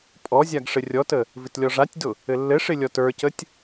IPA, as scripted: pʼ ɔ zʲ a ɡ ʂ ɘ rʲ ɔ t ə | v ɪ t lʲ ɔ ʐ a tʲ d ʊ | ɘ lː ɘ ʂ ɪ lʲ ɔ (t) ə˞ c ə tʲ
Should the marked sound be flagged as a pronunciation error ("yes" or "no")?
no